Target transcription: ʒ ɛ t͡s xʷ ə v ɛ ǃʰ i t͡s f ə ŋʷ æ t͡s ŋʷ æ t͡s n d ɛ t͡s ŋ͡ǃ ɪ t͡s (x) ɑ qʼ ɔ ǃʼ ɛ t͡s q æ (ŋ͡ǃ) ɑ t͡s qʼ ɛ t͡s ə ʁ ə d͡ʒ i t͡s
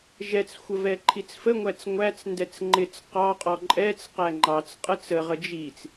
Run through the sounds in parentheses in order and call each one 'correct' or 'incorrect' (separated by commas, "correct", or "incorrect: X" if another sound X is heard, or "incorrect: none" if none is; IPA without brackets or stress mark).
incorrect: q, correct